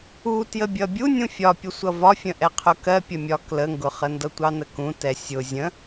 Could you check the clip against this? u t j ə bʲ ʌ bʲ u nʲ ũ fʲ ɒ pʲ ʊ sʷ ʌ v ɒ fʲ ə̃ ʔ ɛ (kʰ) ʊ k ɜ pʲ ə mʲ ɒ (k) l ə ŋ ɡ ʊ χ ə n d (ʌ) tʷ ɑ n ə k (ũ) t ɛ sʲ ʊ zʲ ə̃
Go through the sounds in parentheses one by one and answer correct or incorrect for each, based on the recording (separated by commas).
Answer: incorrect, correct, correct, correct